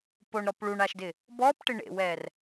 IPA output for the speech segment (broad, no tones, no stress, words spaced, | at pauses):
poɳɾɔp ɭuɳaʃdɪ | bɔpʈɪ ɳḛwɛr